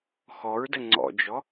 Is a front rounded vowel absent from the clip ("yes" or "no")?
yes